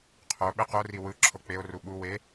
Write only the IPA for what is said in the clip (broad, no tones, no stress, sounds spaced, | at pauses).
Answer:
qʰ o ɓ e q o r i w ɯ ǁʰ o k͡p e o̯ r u ɓ u w e